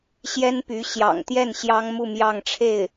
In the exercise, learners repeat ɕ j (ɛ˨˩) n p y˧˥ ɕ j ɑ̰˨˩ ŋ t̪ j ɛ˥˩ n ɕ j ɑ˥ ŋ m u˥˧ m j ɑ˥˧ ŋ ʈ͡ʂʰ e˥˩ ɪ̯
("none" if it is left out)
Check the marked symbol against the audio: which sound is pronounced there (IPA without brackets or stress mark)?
ɛ˥